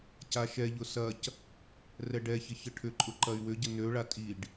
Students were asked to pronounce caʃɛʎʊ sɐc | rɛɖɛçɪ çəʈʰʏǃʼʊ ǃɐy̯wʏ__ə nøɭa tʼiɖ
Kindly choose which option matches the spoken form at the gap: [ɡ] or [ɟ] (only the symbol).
ɟ